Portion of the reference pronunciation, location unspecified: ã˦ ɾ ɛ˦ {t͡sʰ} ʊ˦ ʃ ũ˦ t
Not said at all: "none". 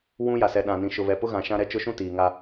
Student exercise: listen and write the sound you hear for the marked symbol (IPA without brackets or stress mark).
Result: t͡ʃ